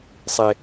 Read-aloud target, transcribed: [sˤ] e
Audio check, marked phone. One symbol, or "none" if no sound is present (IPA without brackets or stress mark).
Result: sˤ